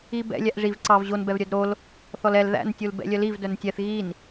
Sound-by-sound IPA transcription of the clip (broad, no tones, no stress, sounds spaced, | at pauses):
i b ɛ̰ lʲ æ ʔ ʐ i v ǀ ɑ v ʑ o n b ɛ v ɾʲ œ d ɾ o l | θ ɔ l ɛ l ð æ̰ n tʲ u l b ɛ̰ lʲ œ l i v d œ n tʲ ɛ θ ɣ i n